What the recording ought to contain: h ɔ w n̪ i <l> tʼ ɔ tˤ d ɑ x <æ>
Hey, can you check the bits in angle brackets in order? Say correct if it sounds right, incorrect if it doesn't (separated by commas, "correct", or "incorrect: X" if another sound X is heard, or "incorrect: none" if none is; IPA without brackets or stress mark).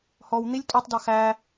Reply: incorrect: lʲ, correct